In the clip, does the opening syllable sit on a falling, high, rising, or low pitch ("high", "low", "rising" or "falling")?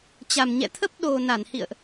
low